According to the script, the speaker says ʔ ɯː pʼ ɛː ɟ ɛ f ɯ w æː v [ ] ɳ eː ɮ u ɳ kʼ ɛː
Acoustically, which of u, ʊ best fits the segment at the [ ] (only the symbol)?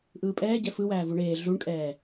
u